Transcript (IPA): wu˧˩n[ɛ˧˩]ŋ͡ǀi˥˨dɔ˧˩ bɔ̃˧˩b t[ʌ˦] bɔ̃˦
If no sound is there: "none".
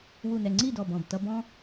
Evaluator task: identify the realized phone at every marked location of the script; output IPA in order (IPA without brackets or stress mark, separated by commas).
ɛ˧˩, ʌ˦